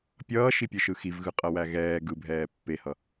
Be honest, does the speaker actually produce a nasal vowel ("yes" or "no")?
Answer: no